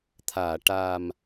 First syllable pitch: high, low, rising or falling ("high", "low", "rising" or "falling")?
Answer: low